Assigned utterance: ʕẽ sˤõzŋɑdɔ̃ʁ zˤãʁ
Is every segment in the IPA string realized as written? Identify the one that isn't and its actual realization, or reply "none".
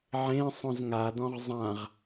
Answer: ɑ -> a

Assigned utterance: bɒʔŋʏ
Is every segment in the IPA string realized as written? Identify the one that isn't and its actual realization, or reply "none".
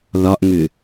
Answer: b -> ð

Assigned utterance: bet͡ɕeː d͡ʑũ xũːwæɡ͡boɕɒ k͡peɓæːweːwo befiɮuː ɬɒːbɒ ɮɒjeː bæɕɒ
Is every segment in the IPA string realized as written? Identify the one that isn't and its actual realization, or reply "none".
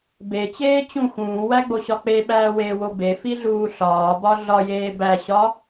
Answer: d͡ʑ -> t͡ɕ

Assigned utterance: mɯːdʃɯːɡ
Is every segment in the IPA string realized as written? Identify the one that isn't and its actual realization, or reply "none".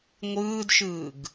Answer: m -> ŋʷ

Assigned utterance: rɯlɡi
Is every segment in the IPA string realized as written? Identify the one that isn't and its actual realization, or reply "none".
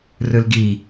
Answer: none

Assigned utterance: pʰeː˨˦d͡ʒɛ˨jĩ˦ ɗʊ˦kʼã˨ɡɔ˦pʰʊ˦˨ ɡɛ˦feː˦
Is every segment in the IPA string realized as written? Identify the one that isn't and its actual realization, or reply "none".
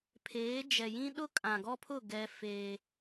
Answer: none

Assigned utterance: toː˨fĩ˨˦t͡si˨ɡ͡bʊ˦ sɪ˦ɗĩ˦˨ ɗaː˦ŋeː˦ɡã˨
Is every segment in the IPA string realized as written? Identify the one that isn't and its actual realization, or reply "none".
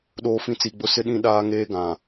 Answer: t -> ɗ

